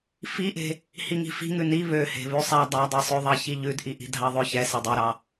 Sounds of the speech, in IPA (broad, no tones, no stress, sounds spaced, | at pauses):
f i ʔ e̤ | h i ŋ i̤ f i̤ ŋ ʉ n i β ø h e̤ β ʉ sˤ æ dˤ æ dˤ i sˤ ø ðˤ ɑ ç i ʎ ʉ d ʔ i ʔ i̤ dʱ ɑ ðˤ ø ç ɛ s e dˤ ɛ ɾ ɑ